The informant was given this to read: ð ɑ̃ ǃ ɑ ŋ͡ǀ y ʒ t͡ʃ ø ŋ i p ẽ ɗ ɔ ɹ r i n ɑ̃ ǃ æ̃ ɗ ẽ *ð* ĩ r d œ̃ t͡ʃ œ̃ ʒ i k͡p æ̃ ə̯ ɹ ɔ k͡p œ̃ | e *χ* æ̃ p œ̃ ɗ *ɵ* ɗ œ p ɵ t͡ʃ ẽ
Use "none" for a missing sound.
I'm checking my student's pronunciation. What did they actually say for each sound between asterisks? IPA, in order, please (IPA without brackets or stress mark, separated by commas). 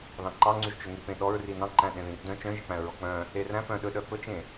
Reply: ð, r, ɵ